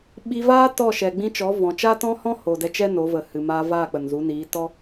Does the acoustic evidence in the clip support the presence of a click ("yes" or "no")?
no